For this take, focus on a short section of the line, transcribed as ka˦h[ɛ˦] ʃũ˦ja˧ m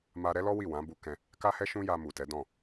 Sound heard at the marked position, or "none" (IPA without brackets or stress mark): ɛ˦